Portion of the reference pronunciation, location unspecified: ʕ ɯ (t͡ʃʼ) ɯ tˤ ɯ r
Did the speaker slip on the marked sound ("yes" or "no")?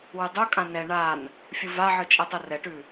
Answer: no